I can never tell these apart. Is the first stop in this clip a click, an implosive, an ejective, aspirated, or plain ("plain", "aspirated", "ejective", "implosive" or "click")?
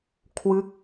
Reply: aspirated